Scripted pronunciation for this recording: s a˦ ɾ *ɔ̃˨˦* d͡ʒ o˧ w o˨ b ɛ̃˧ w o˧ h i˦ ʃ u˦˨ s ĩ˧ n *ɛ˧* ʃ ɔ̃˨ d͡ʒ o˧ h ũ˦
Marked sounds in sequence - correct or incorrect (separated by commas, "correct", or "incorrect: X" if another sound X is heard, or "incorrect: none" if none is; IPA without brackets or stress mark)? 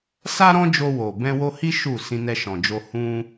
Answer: incorrect: ɔ̃˦, correct